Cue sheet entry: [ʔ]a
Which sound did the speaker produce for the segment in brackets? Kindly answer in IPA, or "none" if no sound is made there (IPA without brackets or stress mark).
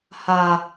h